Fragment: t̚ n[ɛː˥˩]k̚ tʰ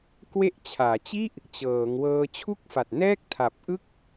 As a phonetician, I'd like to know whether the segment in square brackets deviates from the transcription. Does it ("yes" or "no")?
no